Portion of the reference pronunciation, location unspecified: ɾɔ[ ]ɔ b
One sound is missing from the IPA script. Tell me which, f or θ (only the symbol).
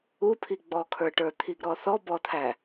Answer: θ